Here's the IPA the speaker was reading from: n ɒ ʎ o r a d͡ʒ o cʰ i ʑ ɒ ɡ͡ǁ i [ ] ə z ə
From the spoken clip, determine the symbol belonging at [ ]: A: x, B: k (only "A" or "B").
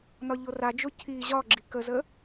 B